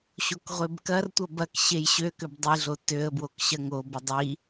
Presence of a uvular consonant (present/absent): present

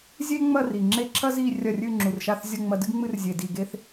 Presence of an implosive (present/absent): absent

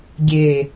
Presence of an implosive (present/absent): absent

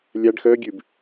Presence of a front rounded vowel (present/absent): present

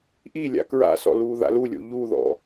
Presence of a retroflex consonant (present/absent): absent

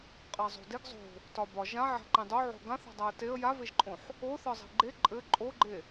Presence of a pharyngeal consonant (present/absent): present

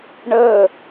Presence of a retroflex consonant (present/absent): present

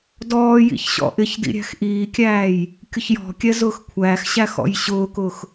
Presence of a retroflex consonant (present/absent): absent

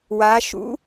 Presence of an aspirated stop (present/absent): absent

